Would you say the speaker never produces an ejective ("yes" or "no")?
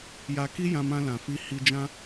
yes